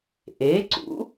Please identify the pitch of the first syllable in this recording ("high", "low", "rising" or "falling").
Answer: rising